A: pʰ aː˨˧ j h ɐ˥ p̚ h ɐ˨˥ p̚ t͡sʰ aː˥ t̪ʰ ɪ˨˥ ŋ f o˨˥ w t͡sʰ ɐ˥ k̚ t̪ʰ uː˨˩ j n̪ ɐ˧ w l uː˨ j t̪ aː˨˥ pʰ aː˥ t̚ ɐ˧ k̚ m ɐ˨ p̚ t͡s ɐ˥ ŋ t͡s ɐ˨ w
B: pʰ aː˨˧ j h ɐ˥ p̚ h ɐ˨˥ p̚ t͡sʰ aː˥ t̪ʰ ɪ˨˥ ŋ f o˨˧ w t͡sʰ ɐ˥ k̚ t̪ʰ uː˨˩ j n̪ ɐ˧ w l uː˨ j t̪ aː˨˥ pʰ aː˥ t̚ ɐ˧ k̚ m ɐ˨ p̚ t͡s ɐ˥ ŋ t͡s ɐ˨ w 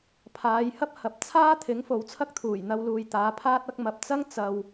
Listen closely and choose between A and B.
A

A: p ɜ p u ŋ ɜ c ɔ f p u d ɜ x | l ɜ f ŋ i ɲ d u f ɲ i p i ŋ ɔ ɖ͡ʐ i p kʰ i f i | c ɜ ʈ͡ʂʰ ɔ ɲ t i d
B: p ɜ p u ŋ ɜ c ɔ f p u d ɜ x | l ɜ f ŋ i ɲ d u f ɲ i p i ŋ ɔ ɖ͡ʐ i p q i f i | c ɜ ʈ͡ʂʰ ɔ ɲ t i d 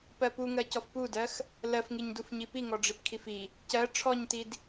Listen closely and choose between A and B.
A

